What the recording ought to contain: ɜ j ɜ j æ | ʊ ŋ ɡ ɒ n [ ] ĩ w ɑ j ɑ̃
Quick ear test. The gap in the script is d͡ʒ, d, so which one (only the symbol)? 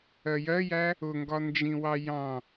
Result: d͡ʒ